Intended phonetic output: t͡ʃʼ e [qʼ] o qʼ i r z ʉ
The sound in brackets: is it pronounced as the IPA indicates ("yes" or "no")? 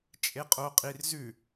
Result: yes